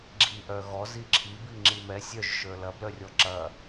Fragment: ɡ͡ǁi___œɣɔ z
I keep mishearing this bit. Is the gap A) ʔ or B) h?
A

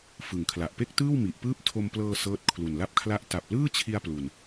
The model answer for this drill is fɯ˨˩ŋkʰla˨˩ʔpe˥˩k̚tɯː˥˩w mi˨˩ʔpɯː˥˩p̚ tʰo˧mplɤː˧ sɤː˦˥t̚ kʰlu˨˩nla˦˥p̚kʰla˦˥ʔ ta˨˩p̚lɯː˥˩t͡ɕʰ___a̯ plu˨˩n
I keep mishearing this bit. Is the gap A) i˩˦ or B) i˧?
B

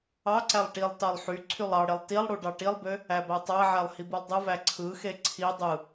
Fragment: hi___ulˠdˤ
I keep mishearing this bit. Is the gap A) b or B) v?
A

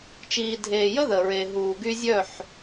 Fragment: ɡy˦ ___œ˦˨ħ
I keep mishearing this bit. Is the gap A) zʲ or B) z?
A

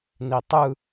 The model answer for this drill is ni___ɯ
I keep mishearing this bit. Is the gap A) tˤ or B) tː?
A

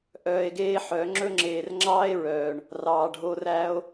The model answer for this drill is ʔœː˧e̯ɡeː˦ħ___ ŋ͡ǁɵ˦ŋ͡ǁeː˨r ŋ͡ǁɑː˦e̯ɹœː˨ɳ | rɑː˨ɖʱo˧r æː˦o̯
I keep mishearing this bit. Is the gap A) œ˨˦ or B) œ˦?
A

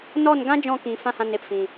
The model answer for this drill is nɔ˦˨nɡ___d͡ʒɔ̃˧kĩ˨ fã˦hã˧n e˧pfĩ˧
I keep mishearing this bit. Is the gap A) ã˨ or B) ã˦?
B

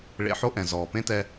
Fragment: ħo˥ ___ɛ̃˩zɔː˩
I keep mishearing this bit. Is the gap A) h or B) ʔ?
B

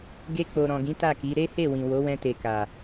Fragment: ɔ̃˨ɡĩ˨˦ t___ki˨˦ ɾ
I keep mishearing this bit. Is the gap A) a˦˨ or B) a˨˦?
A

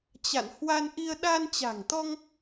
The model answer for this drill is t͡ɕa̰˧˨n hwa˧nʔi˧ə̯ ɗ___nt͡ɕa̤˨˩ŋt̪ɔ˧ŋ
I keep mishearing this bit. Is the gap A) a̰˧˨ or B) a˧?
B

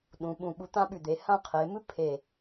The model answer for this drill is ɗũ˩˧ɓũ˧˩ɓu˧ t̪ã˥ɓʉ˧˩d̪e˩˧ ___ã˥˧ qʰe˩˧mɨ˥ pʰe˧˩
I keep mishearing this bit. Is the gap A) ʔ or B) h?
B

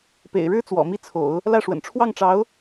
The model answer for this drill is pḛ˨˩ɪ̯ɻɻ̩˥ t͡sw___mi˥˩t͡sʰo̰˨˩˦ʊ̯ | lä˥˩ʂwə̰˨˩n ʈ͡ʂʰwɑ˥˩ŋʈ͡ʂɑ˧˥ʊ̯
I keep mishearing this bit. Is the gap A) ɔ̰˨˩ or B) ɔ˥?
A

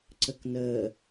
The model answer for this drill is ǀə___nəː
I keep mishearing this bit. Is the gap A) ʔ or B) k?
B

